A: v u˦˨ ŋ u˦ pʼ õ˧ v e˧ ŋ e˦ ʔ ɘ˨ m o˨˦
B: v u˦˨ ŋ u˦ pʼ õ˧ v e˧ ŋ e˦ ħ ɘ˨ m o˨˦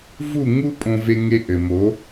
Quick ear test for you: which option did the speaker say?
A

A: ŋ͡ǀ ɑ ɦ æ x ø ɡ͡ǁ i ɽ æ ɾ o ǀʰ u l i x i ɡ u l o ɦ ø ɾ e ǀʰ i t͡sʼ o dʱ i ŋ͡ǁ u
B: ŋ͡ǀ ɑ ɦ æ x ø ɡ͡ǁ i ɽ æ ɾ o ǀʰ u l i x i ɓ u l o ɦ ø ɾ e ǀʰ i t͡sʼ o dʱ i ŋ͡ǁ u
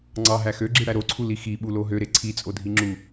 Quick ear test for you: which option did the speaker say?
B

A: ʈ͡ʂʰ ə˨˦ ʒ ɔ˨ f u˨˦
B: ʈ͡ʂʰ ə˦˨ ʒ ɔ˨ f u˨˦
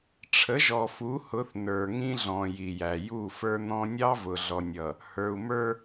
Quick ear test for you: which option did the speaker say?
A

